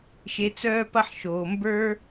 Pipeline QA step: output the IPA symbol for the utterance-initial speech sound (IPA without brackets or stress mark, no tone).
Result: ʃ